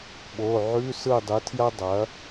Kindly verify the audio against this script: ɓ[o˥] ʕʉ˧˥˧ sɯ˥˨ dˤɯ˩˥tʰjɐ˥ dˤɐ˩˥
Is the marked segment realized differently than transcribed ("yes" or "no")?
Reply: yes